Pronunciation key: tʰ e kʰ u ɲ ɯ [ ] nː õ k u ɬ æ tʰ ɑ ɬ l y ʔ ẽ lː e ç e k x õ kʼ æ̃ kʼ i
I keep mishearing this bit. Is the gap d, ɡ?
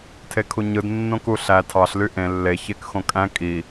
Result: d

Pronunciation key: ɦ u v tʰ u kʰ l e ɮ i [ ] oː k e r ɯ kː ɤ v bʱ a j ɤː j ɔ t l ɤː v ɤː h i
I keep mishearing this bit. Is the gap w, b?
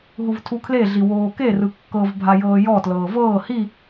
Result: w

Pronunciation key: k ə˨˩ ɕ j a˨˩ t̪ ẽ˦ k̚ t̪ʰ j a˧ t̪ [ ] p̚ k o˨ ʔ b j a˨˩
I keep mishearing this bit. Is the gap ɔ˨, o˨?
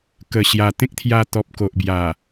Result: ɔ˨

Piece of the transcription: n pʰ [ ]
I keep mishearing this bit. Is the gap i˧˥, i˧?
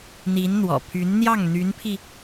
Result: i˧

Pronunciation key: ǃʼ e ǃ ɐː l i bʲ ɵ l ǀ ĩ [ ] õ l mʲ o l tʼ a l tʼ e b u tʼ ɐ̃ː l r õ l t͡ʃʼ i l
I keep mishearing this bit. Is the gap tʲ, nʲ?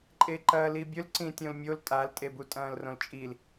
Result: tʲ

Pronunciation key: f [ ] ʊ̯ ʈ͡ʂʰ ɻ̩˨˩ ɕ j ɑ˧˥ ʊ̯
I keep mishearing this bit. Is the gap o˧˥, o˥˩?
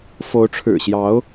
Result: o˧˥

